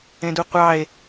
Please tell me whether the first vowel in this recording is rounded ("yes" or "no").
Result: no